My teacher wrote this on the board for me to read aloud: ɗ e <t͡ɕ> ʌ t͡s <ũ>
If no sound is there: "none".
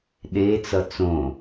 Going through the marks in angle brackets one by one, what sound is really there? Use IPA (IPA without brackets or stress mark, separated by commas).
t͡s, õ